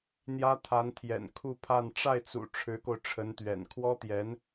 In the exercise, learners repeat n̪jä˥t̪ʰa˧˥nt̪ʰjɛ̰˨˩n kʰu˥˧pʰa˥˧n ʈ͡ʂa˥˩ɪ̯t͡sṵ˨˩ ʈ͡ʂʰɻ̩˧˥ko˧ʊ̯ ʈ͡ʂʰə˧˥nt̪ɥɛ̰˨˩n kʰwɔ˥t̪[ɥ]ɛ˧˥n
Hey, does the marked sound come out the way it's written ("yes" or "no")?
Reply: no